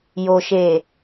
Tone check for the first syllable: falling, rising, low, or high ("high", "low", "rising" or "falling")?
low